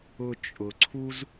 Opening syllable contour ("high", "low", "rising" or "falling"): high